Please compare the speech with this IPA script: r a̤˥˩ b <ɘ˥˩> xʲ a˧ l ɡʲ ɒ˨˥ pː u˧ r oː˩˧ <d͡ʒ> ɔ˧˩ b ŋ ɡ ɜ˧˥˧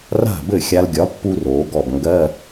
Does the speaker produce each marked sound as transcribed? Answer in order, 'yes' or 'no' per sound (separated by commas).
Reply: yes, no